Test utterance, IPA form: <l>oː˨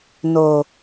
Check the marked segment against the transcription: incorrect: n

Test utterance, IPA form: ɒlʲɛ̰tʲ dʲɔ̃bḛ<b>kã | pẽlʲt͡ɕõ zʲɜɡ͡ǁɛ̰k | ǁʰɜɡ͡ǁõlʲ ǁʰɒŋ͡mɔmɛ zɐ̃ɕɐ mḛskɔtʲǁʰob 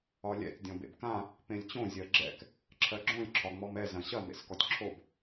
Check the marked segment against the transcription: correct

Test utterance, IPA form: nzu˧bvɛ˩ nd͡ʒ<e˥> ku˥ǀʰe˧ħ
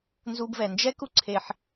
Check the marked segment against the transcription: incorrect: ɛ˥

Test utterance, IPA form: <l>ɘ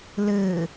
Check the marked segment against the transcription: correct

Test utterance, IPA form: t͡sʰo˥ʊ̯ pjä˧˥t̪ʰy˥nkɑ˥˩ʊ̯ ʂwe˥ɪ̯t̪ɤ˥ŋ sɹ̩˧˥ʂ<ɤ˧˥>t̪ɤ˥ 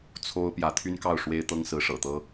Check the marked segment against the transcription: incorrect: ɤ̰˨˩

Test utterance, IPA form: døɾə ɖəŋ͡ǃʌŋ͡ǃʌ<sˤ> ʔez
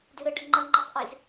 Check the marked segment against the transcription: correct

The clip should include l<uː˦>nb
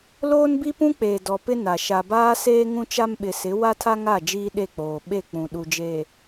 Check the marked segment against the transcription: incorrect: oː˦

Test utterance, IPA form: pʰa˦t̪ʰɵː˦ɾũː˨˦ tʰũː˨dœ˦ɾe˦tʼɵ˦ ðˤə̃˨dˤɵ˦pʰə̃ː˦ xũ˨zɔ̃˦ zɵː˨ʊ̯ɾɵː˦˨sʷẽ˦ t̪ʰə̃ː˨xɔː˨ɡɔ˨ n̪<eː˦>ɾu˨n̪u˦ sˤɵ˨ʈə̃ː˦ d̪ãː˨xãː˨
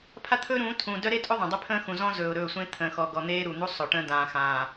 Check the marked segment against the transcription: correct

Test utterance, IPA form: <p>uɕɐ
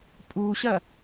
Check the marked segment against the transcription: incorrect: pʼ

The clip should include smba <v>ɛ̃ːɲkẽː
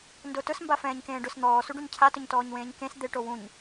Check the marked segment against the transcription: incorrect: f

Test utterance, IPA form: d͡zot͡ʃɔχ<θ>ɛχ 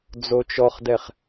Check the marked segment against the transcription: incorrect: d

